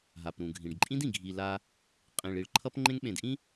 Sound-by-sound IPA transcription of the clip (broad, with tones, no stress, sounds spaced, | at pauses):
ɦ a˨ p ɾ ũ˨ ɡʱ ĩ˨ ɖ ǃʼ ĩ˦ d ĩ˨ ɡʱ i˨ l a˦ | qʼ ĩ˨ ɭ i˨ ɭ ǃʰ ʌ˦ p ŋ͡ǃ ẽ˦ ŋ ɓ ẽ˨ d ʔ ĩ˦